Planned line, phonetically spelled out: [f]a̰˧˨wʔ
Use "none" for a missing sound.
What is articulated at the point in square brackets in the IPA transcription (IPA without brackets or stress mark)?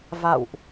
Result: v